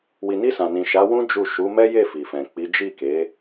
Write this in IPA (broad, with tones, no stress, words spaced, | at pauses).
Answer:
wi˨ni˧ sã˨nĩ˨ʃa˨˦wũ˦ d͡ʒu˦˨ ʃu˨˦mɛ˦je˦˨ fi˨fɛ̃˨k͡pi˨˦ d͡ʒi˦˨ke˨˦